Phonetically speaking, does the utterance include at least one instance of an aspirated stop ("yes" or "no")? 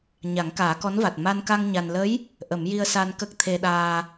yes